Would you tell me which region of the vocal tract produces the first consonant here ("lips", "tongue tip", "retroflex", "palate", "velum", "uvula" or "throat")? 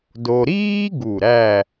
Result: tongue tip